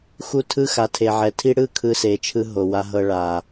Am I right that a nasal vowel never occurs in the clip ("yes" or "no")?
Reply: yes